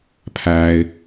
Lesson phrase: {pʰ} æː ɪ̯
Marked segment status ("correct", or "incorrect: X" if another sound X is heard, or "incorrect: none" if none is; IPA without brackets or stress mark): correct